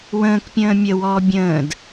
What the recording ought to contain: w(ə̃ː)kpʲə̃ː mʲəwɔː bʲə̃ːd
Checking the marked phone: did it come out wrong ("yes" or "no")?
no